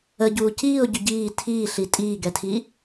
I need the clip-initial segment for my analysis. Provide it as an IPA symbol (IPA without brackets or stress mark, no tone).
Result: ə